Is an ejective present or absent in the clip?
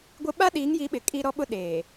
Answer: present